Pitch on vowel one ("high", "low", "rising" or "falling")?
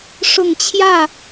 low